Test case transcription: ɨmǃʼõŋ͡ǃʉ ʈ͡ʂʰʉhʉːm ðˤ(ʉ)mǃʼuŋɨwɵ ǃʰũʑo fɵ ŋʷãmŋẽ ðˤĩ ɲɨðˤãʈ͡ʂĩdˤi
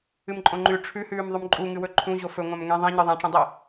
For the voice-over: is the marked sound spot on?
yes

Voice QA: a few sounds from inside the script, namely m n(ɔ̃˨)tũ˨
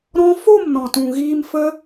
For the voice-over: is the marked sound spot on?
yes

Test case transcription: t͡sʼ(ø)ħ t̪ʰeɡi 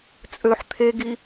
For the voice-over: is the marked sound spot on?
yes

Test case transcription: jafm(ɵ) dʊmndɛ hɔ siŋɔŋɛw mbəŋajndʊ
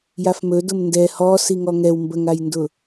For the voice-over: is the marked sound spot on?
yes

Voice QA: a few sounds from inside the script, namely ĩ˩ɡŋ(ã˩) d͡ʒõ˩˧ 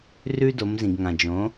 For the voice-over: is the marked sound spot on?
yes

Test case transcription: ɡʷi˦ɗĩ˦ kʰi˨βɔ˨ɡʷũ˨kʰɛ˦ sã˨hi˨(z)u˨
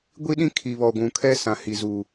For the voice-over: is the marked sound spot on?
yes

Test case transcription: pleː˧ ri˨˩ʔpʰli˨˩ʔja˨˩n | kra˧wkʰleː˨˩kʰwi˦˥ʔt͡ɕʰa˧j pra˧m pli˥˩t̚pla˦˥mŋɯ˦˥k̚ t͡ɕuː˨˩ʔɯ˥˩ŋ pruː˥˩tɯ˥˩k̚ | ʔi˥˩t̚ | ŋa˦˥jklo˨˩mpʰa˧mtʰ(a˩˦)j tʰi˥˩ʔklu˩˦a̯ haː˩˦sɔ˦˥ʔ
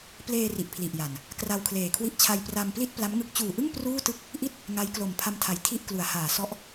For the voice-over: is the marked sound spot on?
yes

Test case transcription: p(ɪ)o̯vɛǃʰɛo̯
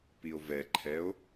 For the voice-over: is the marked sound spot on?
no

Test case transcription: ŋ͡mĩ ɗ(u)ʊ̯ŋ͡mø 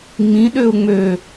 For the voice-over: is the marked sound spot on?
no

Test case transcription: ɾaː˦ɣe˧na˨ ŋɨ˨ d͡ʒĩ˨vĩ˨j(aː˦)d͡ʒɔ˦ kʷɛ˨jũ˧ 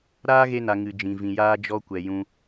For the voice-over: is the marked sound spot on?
yes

